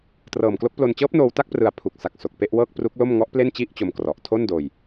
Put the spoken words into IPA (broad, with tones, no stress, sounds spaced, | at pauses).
t r ɤː˨˩ m k l o˦˥ k̚ p l o˧ n t͡ɕ ɤː˦˥ p̚ n oː˧ w t a˥˩ k̚ p r ɯ˧ a̯ pʰ u˨˩ k̚ s a˨˩ k̚ s o˨˩ k̚ p e˥˩ ʔ w ɤː˥˩ k̚ p r u˦˥ k̚ l o˥˩ m ŋ ɔ˦˥ ʔ p l e˥˩ n t͡ɕ i˥˩ ʔ t͡ɕ o˧ m k r ɔ˨˩ ʔ tʰ o˥˩ n d oː˧ j